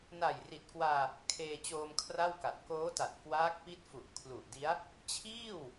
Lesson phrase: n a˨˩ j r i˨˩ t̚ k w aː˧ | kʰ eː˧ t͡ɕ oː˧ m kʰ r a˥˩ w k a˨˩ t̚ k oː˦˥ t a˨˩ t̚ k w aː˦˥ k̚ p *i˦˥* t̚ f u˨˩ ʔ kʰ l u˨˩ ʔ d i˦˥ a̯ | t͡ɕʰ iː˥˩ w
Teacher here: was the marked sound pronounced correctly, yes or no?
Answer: yes